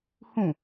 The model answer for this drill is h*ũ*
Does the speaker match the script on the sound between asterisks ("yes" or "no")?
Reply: yes